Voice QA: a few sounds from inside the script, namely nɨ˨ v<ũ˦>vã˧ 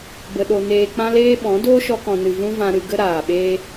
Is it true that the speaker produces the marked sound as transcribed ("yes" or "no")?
yes